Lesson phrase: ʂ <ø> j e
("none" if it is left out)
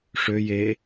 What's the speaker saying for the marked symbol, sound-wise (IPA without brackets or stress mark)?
ø